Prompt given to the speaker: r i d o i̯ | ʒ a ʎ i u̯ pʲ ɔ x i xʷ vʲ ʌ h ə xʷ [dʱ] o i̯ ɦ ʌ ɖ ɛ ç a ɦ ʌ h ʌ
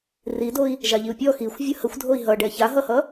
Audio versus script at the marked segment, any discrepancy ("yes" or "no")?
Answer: no